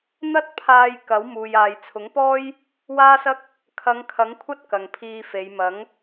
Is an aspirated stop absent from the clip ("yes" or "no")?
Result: no